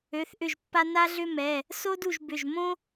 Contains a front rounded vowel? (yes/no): yes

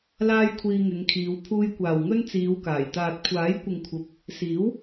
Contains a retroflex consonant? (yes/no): no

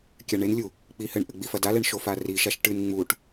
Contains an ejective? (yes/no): no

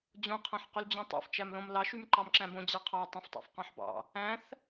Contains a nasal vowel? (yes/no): yes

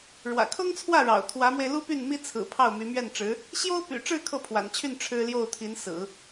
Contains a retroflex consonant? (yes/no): yes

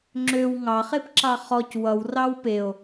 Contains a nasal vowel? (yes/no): no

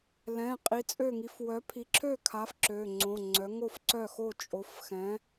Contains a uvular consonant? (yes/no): yes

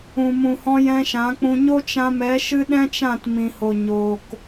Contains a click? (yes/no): no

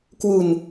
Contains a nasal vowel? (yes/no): no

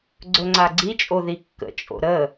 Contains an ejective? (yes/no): yes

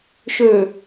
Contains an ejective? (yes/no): no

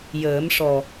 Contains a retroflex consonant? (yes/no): yes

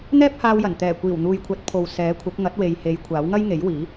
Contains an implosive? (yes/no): no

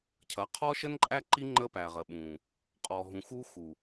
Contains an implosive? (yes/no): yes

